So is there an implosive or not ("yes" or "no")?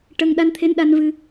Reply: yes